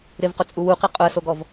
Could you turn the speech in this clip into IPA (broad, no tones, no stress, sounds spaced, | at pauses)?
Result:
ɾ ɪ v q ʊ t͡sʼ u w u q i qʼ ʊ ə̯ s o ɡ ɔ v